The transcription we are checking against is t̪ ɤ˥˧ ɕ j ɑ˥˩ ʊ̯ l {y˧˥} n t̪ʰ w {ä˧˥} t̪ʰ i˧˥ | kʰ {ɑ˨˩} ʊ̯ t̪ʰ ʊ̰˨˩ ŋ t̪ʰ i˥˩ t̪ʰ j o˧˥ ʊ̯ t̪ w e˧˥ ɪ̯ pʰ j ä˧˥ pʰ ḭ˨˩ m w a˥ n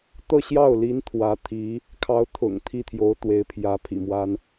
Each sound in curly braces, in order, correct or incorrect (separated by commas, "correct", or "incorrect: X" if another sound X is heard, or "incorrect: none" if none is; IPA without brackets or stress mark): incorrect: i˧˥, correct, incorrect: ɑ˧˥